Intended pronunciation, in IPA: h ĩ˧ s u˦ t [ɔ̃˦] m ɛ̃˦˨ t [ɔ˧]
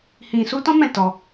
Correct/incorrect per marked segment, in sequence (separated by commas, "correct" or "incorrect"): correct, correct